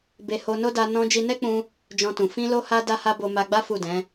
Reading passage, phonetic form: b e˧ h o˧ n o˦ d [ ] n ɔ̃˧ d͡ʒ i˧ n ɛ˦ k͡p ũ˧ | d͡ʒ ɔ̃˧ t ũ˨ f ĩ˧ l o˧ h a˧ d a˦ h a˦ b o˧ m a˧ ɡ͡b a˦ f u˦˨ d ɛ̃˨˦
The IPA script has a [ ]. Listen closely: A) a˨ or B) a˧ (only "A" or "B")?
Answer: B